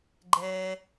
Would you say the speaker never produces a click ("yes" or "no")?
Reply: no